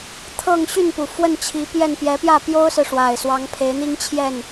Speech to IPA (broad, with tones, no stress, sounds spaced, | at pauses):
t̪ʰ ɤ˥˨ ŋ ɕ y˥˨ n p u˩ f w ə˥˨ n t͡ɕʰ i˨˦ p j ɛ˥˨ n p j ɛ˨˦ p j ä˥˨ p j o˦ ʊ̯ s ɹ̩˨ ʂ w a˨˩ ɪ̯ s w ɑ˨˦ ŋ pʰ e˨˦ ɪ̯ n̪ i˦ ŋ t͡ɕʰ j ɛ˥˨ n